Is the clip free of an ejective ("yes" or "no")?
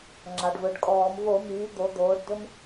no